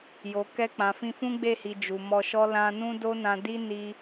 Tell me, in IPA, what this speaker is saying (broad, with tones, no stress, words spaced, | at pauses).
jo˨ kɛ˧k͡pã˨ fĩ˧fũ˦ɡ͡be˦˨hi˨ d͡ʒu˨mɔ˧ʃɔ˦lã˦ nũ˦do˦nã˧ di˦ ni˦